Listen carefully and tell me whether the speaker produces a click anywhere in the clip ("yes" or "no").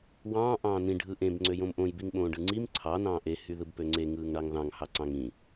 yes